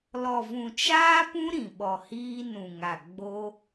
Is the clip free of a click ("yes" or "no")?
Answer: yes